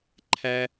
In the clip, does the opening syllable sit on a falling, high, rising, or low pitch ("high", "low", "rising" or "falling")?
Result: high